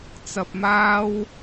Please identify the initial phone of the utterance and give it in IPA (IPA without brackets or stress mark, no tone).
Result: t͡s